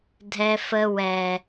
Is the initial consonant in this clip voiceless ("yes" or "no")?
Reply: no